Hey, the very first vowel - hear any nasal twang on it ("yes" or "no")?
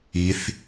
no